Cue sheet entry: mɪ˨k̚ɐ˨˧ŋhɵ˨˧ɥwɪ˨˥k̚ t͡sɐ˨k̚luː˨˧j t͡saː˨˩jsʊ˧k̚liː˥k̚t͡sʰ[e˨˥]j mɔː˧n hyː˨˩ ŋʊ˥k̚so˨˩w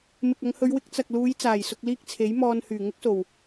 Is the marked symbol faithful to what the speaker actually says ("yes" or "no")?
yes